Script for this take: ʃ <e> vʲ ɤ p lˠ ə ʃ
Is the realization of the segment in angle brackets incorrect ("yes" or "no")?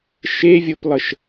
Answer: no